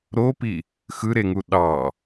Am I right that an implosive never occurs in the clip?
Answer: no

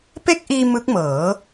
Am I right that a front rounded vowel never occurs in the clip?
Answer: yes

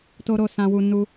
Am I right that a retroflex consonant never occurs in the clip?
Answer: yes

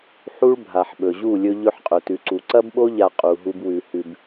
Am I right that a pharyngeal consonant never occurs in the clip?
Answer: no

